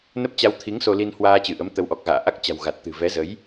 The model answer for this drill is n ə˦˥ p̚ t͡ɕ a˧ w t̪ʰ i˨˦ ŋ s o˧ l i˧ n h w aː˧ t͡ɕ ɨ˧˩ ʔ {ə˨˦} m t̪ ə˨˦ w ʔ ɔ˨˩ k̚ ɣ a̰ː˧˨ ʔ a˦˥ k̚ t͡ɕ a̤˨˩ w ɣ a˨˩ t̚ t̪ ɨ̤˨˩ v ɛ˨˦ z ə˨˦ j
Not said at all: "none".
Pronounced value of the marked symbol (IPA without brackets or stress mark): ə˨˦